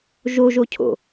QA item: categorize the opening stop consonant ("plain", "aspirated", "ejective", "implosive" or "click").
aspirated